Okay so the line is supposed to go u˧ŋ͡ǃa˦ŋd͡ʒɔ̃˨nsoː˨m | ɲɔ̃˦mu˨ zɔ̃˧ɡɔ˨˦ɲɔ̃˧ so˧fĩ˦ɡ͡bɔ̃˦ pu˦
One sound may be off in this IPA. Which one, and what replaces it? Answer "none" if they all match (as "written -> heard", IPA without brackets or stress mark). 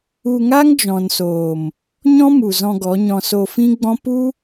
ŋ͡ǃ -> ŋ